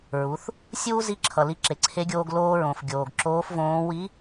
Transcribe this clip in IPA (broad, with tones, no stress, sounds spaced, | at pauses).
ɹ u˩˧ θ | sʲ uː˥ z i˧˥ ǁʰ ʌ˩ l i˧ ǁ e˩˧ ǀʰ e˧˥ ɡʲ oː˧ ɡ l oː˧ ɹ õ˩ f ɡʲ oː˩ ɡ ǁ oː˧˥ f v õː˧˥ w i˧˥